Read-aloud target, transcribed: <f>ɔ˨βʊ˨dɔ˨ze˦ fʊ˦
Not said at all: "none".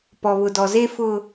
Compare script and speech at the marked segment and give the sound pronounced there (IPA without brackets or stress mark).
p